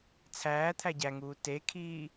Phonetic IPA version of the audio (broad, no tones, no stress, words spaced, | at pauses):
t͡sʰæː t̪ʰæɟæŋuː tekʰiː